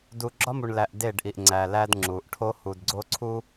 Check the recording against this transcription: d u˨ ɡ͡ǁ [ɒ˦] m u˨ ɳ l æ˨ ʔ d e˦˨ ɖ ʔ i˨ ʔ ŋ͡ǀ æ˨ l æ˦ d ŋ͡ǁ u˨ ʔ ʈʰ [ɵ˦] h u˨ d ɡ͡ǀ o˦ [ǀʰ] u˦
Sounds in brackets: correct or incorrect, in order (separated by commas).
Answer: correct, incorrect, correct